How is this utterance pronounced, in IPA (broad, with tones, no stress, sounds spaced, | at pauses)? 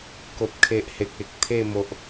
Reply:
k o˨ p̚ kʰ e˨ ʔ h e˨ k̚ e˨ k̚ t̪ʰ e˥˧ m o˨ ʔ